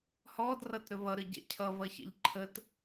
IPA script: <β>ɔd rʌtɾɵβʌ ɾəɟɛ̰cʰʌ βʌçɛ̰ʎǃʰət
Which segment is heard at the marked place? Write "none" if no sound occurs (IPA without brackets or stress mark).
h